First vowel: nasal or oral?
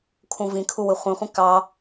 nasal